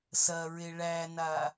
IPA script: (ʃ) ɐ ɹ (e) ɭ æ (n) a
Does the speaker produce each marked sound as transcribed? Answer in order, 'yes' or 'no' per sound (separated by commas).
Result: no, yes, yes